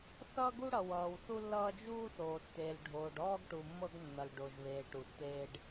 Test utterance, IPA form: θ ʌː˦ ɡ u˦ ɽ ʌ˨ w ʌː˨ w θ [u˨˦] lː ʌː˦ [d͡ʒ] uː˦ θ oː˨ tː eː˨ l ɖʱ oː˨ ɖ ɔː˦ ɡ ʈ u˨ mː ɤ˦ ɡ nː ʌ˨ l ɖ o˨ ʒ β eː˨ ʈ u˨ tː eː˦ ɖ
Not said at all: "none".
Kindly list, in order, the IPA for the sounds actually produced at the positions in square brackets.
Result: u˦, d͡ʒ

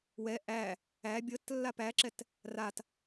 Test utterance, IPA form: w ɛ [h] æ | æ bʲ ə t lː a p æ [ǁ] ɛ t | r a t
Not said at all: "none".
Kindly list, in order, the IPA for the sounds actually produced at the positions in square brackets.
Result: ʔ, ǁ

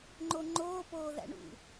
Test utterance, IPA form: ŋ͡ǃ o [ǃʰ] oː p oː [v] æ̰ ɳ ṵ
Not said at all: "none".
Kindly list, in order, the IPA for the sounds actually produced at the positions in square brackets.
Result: ŋ͡ǃ, ð

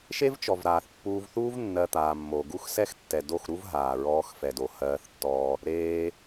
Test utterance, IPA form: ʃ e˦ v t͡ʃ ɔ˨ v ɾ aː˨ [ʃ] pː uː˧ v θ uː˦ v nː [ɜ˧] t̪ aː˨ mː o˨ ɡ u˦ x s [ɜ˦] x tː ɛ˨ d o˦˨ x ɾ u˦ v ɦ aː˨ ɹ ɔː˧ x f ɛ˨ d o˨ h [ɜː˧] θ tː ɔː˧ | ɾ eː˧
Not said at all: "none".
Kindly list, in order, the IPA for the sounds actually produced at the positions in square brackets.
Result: θ, ɜ˧, ɛ˦, ɜː˧

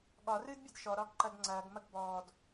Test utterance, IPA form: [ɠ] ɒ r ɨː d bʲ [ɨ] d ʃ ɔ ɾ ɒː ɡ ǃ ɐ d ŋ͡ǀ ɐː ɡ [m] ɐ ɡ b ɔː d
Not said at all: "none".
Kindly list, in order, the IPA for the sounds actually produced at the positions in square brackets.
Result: ɠ, ɨ, m

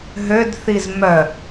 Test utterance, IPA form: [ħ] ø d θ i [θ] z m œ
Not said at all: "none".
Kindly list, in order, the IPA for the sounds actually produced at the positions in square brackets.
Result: ɦ, none

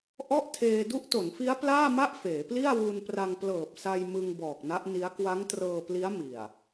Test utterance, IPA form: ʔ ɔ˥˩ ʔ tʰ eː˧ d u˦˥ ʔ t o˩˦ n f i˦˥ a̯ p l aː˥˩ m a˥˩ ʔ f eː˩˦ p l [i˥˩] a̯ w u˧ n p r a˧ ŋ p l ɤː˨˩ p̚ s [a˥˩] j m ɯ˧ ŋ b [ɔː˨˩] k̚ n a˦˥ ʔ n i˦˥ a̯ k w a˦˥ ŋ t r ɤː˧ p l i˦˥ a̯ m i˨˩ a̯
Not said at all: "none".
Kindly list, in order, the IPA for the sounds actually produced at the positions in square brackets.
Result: i˥˩, a˧, ɔː˨˩

